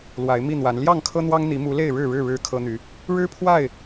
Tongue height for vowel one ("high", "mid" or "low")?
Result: low